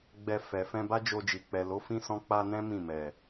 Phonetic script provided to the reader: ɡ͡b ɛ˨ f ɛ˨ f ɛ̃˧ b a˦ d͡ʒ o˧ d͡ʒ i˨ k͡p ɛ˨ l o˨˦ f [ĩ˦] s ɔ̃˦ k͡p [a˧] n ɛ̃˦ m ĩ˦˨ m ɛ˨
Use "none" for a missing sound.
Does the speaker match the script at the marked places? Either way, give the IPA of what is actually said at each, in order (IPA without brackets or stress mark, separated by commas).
ĩ˦, a˧